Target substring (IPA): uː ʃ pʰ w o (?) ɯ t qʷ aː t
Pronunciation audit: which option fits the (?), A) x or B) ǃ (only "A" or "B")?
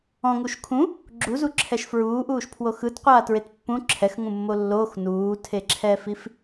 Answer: A